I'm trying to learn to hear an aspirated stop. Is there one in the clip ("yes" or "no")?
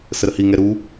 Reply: no